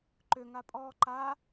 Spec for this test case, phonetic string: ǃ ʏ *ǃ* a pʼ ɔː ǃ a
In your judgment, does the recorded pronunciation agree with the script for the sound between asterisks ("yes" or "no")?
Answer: no